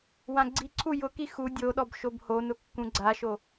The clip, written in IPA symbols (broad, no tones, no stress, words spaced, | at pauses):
wãɡ͡ǀiǀʰu jʊki xu dʲoɗɔb ʃobhonʊ kːũɡ͡ǀaʃo